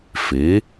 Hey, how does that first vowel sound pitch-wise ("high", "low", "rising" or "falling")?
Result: rising